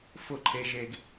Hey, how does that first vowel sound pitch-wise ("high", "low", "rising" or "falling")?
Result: falling